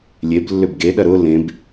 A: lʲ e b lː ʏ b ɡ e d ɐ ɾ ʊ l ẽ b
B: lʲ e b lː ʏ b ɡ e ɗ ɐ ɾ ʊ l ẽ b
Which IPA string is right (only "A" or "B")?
B